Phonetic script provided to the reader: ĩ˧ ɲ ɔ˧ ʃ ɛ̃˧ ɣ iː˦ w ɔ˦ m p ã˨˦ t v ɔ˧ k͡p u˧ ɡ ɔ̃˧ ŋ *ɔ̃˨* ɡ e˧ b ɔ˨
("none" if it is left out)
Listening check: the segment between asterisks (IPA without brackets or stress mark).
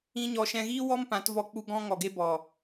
ɔ˨